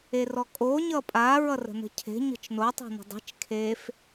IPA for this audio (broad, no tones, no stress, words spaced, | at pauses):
erɔkʼo ɲʌpʼa ɹʌrə̤nə̤cʰe̤ ɲə̤t͡ʃno tˤɛ̤nə̤dˤe̤t͡ʃ kʰef